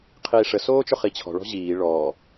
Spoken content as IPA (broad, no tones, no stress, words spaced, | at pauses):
qʰiːʂə soːt͡ʃʊχit͡ɕʰɔ̤ ɭɔ̤ʑiː ɭɔː